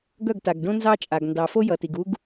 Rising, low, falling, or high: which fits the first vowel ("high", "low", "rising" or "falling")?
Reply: falling